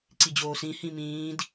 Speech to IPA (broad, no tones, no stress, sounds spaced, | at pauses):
ǀ i d͡ʑ oː s ĩ h ĩ m ĩː d